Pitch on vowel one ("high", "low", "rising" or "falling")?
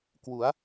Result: rising